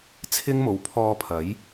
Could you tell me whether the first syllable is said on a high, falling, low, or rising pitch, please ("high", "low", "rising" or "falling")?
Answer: high